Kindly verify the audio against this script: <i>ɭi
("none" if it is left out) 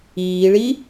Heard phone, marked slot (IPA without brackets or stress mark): iː